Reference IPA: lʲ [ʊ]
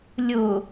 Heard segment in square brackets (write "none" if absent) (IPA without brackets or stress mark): ʊ